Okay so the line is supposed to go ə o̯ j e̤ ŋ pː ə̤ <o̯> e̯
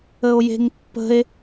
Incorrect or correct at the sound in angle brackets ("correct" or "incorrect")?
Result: incorrect